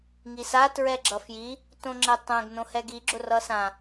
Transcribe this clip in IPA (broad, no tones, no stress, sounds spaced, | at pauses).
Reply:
ŋ i s a t ɹ ɛ ɡ͡ǁ ʌ f j i | t õ ŋ͡ǁ ɛ tˤ ɛ̃ ɡ n õ h ɛ ɡ i ɡ͡ǁ ʊ r ʌ s ã